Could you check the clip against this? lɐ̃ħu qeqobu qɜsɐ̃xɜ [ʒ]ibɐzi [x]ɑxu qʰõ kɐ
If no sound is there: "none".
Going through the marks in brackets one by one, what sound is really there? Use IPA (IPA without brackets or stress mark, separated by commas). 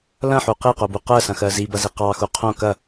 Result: z, q